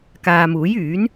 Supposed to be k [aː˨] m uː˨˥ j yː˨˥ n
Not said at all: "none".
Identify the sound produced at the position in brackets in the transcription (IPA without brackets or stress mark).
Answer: aː˨